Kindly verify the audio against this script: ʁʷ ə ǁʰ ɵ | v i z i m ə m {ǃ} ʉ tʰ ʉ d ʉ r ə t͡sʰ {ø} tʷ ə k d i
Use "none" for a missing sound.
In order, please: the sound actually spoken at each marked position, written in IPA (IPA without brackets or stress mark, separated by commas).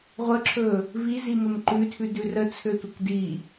ǃ, ø